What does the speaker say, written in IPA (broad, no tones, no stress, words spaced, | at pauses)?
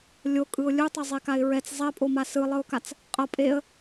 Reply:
lʲokʼɯʊ̯ lʲu tˤʌzˤekaɪ̯ɹɛt͡s zˤɛpʼoma sɯlˠɯʊ̯kat͡s | qʼʌ pʼeə̯